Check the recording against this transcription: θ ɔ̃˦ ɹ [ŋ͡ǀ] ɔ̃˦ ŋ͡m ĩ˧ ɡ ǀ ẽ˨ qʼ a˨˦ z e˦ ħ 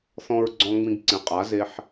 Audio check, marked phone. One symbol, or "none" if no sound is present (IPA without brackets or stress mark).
ɡ͡ǀ